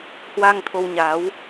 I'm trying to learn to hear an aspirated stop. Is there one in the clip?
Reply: yes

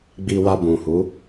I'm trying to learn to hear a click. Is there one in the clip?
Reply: no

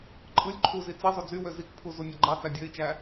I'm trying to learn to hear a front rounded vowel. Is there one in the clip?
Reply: yes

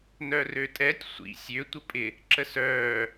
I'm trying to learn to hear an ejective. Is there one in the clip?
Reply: yes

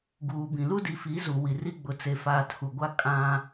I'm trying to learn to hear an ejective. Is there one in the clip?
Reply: yes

